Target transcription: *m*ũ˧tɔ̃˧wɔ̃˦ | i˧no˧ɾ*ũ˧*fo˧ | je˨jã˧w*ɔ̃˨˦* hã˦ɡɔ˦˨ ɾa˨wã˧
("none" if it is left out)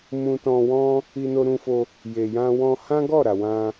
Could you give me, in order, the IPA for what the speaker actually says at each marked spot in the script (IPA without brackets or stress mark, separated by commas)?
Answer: m, ũ˧, ɔ̃˧